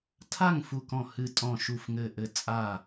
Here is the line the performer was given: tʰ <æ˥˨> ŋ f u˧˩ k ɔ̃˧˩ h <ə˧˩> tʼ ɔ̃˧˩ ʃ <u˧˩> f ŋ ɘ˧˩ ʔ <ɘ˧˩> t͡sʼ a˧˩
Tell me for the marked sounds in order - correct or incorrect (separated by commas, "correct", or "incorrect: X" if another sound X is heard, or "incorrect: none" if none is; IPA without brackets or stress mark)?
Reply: incorrect: a˥˨, incorrect: ɨ˧˩, correct, correct